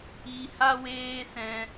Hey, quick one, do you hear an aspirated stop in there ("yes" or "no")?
no